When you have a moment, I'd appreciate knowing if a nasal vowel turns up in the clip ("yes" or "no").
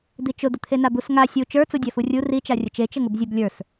no